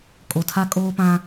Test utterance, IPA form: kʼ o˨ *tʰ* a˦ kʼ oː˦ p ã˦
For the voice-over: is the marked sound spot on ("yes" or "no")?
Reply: yes